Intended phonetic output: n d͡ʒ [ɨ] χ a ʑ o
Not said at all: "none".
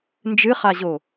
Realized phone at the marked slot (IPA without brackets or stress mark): ɨ